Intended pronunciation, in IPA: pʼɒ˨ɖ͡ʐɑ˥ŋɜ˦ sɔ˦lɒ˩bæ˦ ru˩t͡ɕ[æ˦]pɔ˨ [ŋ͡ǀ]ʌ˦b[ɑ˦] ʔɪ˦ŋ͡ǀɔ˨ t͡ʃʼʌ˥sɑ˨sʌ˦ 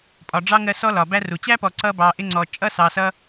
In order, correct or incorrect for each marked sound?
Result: incorrect: æ˥, incorrect: ǀ, incorrect: ɑ˨

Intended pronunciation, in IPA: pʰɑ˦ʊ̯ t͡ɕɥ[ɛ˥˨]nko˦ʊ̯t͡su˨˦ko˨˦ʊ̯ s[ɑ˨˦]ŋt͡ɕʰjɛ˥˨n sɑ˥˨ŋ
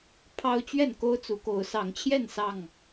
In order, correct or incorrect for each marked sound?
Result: correct, correct

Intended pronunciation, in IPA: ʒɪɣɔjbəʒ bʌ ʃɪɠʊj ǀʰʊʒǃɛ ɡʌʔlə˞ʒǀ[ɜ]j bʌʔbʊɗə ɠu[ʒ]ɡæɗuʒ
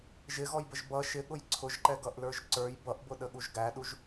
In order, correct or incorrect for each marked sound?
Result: incorrect: ə˞, correct

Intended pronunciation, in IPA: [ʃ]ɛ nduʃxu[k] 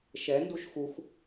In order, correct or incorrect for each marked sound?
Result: correct, incorrect: x

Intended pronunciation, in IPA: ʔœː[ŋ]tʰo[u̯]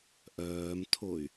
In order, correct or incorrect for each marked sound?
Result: incorrect: m, incorrect: y̯

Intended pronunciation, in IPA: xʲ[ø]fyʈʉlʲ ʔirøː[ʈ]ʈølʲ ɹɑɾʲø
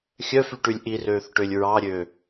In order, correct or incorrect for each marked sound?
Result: incorrect: œ, incorrect: θ

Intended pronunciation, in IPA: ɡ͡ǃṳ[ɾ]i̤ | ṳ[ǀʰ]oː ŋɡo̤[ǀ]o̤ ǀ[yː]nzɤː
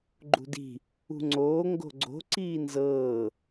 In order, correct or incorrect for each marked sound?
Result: incorrect: d, incorrect: ŋ͡ǀ, incorrect: ɡ͡ǀ, incorrect: iː

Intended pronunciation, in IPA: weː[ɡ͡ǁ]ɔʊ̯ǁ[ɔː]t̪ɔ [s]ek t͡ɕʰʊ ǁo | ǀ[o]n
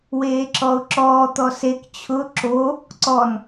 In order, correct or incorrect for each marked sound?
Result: incorrect: ǁ, correct, correct, incorrect: ɔ

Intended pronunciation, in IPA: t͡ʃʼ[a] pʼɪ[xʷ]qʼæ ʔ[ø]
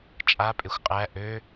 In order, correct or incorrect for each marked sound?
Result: correct, correct, correct

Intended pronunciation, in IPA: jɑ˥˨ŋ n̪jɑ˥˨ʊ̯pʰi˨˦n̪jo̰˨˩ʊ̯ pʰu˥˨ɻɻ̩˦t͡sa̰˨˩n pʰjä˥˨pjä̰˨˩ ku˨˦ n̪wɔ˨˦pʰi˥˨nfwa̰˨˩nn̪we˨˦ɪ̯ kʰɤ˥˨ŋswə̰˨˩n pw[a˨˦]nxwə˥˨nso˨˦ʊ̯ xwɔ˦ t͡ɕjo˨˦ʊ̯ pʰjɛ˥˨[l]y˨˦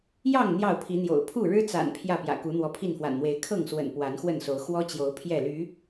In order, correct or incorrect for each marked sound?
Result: correct, correct

